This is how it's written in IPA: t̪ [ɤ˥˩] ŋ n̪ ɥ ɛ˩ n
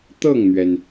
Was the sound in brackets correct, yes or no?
yes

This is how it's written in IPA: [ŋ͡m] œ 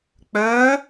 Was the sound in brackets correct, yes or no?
no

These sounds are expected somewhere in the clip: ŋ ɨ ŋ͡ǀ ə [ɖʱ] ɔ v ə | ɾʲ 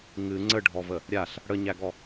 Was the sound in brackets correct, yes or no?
yes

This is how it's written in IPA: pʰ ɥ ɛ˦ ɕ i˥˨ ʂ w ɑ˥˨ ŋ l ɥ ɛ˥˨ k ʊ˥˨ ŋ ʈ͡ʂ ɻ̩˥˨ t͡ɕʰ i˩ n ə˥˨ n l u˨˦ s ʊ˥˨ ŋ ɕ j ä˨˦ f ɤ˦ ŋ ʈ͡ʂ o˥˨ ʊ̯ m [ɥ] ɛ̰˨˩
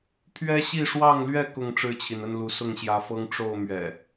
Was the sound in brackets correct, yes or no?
yes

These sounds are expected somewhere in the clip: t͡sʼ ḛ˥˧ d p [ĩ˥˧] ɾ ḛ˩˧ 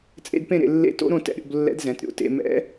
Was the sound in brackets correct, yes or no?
no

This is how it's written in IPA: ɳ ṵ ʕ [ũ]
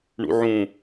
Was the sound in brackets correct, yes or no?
yes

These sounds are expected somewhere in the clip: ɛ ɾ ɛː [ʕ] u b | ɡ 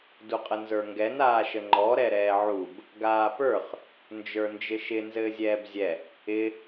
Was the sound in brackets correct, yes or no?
yes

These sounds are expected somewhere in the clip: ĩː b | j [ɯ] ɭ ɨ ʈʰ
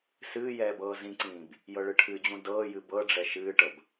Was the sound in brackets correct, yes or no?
no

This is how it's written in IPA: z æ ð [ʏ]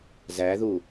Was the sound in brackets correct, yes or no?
no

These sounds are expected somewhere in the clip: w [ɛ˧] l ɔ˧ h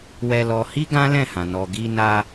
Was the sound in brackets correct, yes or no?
yes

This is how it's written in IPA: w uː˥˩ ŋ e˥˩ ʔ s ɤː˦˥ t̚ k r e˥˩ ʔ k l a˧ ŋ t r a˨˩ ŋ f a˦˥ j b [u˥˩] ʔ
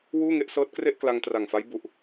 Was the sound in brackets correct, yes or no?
no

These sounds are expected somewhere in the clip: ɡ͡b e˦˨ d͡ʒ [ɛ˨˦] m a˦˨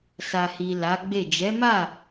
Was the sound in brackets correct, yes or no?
yes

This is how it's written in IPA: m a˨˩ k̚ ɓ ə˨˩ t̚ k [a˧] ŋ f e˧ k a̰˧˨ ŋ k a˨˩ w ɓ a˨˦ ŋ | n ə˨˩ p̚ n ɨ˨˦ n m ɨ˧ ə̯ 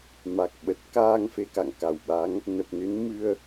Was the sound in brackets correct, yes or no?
no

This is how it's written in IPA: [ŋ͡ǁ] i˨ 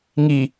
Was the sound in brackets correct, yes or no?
no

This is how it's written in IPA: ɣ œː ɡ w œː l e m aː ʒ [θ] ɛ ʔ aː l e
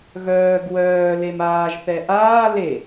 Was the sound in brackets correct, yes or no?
yes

